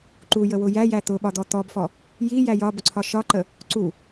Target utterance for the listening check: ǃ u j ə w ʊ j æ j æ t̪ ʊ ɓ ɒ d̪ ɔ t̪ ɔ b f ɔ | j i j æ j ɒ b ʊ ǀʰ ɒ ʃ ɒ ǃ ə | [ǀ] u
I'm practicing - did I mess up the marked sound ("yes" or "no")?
no